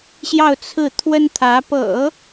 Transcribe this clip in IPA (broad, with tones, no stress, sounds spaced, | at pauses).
ɕ j ɑ˥˧ ʊ̯ t͡sʰ ɹ̩˥˩ t̪ʰ w ə˥ n t̪ʰ ä˧˥ p ɤ̰˨˩˦